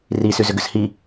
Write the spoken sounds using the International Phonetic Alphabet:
r i s y z ʏ ɡ ʏ s h i

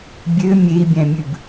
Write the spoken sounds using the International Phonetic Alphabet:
bʲ ø mʲ e i̯ bʲ æ̃ mʲ ʉ b

